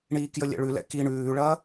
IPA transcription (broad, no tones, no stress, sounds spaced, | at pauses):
ɳ iː k j ə lʲ ɛ̰ ɭ ʉ l ɛ̰ k i ɳ ʉː ɭ ɐː